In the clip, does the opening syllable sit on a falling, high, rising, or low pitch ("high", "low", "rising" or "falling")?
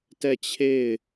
falling